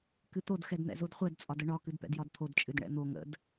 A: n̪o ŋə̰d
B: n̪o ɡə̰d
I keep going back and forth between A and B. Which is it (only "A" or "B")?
A